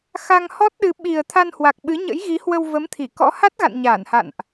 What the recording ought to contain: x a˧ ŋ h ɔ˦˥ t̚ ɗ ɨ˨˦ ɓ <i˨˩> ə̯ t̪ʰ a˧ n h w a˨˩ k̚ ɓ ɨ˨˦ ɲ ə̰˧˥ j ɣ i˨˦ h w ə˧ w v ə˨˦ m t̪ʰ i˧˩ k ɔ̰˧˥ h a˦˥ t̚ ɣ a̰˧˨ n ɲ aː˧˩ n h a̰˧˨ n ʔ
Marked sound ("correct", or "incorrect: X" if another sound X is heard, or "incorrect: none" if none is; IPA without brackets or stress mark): correct